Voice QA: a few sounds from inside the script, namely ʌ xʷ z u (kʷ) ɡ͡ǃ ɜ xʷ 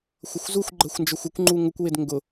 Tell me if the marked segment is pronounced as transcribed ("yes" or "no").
no